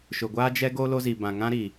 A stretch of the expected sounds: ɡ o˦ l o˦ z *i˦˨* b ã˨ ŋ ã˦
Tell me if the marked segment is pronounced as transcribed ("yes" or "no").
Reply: no